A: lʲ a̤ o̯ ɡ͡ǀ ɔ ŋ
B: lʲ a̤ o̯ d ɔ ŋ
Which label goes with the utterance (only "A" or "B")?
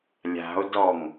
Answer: B